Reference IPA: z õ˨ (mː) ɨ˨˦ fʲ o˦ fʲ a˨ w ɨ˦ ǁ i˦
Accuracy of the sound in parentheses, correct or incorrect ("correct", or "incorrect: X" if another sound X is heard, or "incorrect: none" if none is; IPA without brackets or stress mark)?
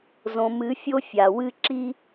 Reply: incorrect: m